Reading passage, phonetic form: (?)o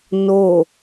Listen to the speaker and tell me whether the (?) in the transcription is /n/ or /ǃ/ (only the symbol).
n